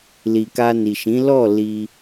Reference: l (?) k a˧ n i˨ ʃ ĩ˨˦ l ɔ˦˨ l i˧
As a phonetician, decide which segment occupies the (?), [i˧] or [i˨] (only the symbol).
i˨